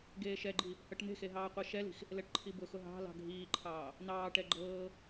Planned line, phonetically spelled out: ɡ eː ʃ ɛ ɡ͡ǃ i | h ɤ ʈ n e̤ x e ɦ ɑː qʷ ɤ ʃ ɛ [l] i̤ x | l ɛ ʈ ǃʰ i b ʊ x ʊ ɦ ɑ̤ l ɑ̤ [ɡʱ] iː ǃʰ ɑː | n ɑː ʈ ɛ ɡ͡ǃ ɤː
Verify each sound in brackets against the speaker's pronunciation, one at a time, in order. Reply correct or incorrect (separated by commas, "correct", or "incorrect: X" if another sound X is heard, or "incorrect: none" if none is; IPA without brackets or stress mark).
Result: correct, correct